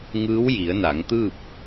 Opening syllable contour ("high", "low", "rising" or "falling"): rising